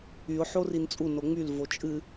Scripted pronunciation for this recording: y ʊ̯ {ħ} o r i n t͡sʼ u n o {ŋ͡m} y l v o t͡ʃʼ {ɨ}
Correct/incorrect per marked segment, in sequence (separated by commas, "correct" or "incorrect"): correct, correct, correct